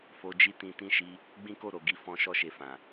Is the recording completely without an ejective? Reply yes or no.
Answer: yes